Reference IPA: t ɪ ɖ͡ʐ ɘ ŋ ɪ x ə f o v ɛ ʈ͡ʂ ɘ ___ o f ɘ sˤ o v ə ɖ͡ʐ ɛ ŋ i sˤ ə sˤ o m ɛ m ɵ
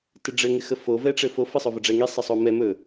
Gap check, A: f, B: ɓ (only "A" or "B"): A